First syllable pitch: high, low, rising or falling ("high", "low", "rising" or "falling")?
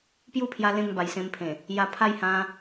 falling